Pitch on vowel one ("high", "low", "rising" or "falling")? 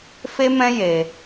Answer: high